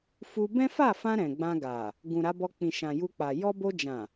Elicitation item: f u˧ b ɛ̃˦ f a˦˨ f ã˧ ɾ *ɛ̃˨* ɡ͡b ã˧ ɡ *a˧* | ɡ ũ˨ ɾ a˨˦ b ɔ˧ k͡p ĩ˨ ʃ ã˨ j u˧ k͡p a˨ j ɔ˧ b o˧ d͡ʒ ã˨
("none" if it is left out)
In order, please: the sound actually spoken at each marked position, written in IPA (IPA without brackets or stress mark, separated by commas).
ɛ̃˨, a˨